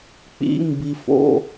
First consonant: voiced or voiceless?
voiceless